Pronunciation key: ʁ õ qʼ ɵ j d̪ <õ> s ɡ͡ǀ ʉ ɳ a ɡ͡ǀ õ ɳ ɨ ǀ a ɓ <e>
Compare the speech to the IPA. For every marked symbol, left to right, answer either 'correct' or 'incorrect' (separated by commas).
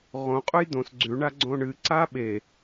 correct, correct